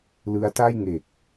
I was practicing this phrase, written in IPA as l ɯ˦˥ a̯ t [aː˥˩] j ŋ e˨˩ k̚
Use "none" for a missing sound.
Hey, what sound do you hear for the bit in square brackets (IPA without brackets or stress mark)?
a˥˩